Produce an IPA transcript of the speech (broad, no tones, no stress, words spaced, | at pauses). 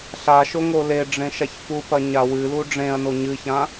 ɬaʃo ŋoleɖ͡ʐẽ ʃaçfupɐ ɲawɨlu ɖ͡ʐẽɐ̯no ɲɨçã